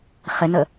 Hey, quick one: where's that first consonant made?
uvula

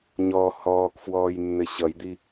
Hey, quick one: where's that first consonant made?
palate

